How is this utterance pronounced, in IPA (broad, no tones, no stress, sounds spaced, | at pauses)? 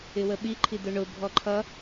ɪ w ə ɓ i ǃʰ i d̪ ʊ ɳ ʊ bʱ ɔ ǃʰ ʌ